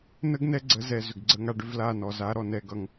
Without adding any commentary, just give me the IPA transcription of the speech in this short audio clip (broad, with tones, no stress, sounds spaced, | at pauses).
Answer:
n ə˦ ɡ n ɛ˦ ɡ͡ǀ ə˨˦ z ɛ˨ z ʏ˨ ɡ ɡ͡ǀ ə˧ ŋ a˧ ɖ ʏ˧ v l a˦˨ n ɔ˨ z a˦ ɾ ɔ˨ n ɛ˨ ɡ ʌ˨ ŋ